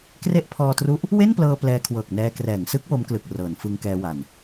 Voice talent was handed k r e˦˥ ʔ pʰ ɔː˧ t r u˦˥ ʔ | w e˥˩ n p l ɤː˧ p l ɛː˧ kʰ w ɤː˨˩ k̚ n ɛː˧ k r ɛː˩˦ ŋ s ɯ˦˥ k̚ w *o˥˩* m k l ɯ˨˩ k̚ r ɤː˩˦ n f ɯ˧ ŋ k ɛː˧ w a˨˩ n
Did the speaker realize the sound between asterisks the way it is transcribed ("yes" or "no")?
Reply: no